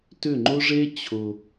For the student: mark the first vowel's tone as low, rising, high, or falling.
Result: falling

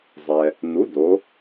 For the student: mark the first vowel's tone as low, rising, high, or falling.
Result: low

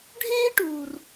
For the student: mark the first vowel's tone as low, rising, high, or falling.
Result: high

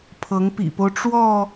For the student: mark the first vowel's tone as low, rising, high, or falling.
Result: rising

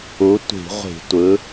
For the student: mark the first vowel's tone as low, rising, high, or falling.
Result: rising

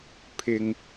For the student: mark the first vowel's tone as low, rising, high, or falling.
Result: low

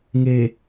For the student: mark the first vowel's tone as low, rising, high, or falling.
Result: low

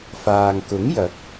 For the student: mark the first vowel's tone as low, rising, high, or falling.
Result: low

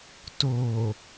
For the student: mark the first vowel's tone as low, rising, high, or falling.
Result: low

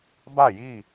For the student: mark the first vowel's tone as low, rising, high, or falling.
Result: falling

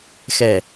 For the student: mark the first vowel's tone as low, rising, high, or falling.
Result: low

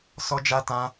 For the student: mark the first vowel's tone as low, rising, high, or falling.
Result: high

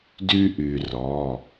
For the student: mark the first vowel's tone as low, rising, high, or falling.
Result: high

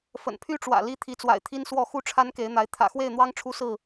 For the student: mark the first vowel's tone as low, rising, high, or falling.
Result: low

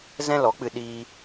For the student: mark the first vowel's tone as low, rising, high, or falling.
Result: high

